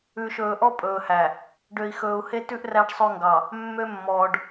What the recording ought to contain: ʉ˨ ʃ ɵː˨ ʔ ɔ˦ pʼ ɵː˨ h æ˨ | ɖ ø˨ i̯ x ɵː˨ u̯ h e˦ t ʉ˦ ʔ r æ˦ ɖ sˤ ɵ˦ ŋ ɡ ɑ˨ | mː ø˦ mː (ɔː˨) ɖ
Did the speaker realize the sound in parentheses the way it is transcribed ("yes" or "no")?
yes